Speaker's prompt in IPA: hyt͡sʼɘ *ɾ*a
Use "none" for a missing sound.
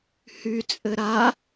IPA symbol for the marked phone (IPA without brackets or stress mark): ɾ